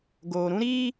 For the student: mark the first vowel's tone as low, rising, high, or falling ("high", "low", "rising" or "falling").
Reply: low